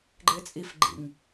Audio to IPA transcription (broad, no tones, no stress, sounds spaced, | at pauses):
ɡ͡ǃ ɪː t͡sʼ i f ɡ͡ǃ ḭ ŋ